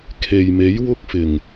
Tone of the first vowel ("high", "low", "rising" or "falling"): low